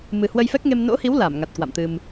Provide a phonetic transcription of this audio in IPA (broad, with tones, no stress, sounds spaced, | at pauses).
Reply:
m ɨ˨˩ h w ə˧ j f ɛ˦˥ k̚ ŋ e˧ m n o̰˧˥ h i˨˦ w l a˧˩ m ŋ a˨˩ t̚ k w a̰˧˨ m t̪ ɨ˧ m